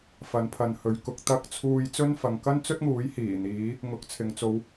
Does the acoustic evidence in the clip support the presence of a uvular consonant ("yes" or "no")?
no